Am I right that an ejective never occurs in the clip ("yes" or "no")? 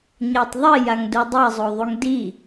yes